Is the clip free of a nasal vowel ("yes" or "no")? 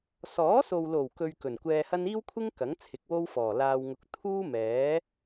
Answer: yes